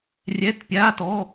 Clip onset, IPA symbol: rʲ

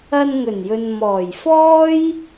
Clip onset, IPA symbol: ɐ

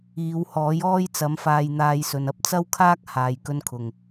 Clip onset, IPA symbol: iː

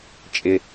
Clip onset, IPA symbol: t͡ʃʼ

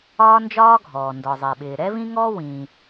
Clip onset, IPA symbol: ɒː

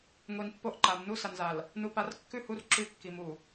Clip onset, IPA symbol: ŋʷ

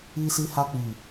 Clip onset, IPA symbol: i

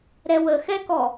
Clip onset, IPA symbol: ɾ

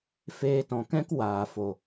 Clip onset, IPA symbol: f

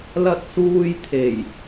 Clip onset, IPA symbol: l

